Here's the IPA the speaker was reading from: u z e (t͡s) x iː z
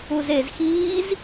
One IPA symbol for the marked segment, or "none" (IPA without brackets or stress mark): z